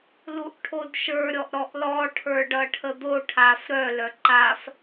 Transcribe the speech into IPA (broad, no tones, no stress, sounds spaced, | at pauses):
l u ʔ ʈʰ o d ʃ ə˞ ɾʲ ɔ ʔ ɾ ɔ ʔ l ɔ ʈʰ ə˞ ɖ ʌ ʈʰ ə d̪ o ʈʰ a f ɾ œ l œ ǃ a f